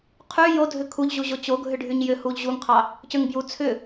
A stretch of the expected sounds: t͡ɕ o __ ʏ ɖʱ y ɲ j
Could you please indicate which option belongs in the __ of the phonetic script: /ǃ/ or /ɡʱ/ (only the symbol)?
ɡʱ